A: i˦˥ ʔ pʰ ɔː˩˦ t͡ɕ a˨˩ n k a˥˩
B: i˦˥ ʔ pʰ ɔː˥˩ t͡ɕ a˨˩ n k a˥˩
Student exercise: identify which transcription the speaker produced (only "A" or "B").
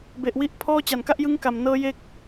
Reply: B